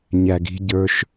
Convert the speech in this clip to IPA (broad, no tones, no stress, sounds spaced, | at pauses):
ɲ æ ɡ i̤ ɟ ə˞ ʃ